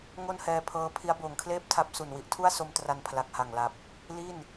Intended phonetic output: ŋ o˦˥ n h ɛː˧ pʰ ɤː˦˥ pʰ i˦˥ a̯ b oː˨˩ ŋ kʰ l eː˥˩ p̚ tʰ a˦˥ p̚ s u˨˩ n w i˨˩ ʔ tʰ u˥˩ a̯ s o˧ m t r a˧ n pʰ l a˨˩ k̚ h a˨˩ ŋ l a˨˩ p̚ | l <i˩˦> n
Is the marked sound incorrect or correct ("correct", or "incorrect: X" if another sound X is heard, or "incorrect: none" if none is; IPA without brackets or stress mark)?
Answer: incorrect: i˥˩